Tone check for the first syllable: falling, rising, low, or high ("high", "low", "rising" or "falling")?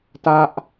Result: high